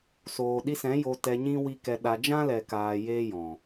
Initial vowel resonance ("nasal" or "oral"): oral